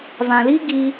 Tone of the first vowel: low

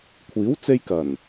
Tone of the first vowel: rising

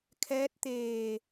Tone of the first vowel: rising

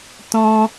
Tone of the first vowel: high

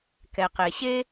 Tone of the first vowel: low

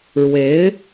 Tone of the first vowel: rising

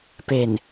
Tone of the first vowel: low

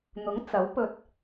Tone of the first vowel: rising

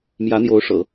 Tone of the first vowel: rising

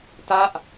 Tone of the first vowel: falling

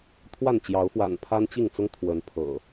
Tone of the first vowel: falling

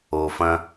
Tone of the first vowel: low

